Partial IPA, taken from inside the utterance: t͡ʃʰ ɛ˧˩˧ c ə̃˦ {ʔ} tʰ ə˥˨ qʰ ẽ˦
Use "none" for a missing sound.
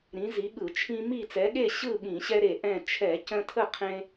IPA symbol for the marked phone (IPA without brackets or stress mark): none